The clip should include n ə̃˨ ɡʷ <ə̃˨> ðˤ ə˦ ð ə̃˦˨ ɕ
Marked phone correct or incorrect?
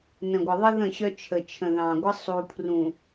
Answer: incorrect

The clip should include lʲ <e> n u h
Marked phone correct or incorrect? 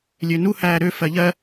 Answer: incorrect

